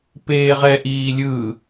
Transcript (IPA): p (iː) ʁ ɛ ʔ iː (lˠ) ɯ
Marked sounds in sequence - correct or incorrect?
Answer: incorrect, incorrect

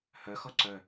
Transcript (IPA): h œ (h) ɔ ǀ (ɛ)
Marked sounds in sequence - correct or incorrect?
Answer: incorrect, incorrect

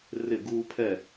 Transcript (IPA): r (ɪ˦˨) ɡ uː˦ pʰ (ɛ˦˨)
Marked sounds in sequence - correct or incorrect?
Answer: correct, correct

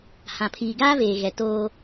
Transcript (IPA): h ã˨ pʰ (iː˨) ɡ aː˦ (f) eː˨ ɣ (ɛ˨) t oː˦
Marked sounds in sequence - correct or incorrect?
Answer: correct, incorrect, correct

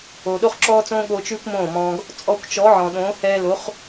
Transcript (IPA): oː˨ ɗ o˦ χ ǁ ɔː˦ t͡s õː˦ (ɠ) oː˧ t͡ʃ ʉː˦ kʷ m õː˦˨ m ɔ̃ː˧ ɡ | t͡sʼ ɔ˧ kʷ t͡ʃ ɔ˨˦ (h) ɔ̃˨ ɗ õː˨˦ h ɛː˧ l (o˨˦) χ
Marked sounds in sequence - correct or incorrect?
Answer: correct, incorrect, correct

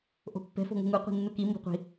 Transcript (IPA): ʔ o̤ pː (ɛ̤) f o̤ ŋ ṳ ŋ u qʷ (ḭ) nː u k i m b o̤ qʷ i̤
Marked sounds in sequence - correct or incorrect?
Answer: correct, incorrect

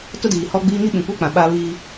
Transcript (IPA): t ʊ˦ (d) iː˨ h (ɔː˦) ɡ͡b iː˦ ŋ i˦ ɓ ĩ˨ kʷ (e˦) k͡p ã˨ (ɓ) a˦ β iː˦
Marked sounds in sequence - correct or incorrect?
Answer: correct, incorrect, correct, correct

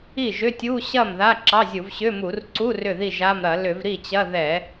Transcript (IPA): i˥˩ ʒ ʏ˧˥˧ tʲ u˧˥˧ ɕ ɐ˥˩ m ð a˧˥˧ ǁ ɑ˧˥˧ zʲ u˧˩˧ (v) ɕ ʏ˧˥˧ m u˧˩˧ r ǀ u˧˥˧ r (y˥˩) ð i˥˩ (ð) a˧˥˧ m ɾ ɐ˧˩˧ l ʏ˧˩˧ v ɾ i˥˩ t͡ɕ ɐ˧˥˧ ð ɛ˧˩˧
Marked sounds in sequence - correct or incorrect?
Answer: correct, incorrect, incorrect

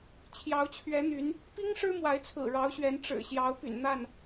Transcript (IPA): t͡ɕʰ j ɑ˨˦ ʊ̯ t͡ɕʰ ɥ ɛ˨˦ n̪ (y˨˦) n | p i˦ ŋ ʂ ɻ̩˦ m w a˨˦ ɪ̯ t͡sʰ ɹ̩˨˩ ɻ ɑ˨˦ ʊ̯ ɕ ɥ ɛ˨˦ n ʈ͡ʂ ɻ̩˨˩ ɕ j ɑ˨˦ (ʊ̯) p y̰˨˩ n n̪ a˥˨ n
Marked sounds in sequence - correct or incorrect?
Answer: correct, correct

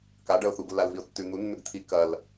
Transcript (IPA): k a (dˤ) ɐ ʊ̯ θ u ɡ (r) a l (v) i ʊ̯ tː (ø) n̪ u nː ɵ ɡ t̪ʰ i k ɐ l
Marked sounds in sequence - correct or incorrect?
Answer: incorrect, incorrect, correct, incorrect

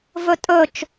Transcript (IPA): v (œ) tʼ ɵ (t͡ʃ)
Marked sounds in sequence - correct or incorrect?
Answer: incorrect, correct

